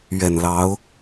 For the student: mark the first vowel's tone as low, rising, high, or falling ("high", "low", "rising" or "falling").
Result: low